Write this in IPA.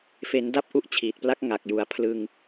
f e˩˦ n d a˥˩ p̚ ʔ u˦˥ ʔ t͡ɕʰ iː˨˩ t̚ p l a˦˥ k̚ ŋ a˨˩ k̚ j u˩˦ a̯ pʰ l ɯ˧ ŋ

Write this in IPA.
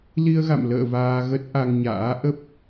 l i˧ ə̯ ɣ a̰˧˨ m l ə̰ː˧˨ v aː˧ ɣ ə˦˥ t̚ ʔ a˧ ŋ ɲ a̰ː˧˥ ʔ ə˦˥ p̚

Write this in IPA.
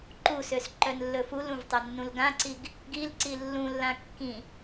ǃ u s ø s ǃ œ n lː ɵ f u l ũ v tˤ ɵ nː ũ l ɡ ã ǀ i ɡ | ɡ i l ǀ i lː ũ lː ã kː ĩ

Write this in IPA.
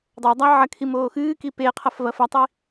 dˤ o dˤ a ʕ ɐ kʰ i m oː x ɨː k i p e qʰ ɐ f v ɐ f ɐ tˤ i

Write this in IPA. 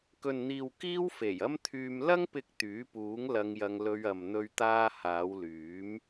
k ɵ˨ n n̪ iː˨ w k iː˥ w f e˨˩ j ɐ˥ m t̪ʰ yː˧ m l ɐ˥ ŋ p ɪ˧ k̚ t̪ yː˨˥ p uː˨˥ ŋ l ɐ˧ ŋ j ɐ˧ ŋ l ɵ˧ ɥ ɐ˨ m n̪ ɵ˧ ɥ t̪ aː˧ h aː˨˧ w l yː˨˥ m

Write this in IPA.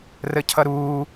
r ə cʰ ʌ ɾ uː

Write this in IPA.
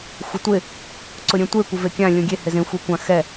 xʷ ɪ tʷ ɪ | ǀ ʊ ɾʲ ẽ tʷ e kʷ ɪ v e kʲ ã lʲ ũ ɡʲ e h ɪ z ẽ xʷ i kʷ ã x ɛ

